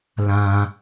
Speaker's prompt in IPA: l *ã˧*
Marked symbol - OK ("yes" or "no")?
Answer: yes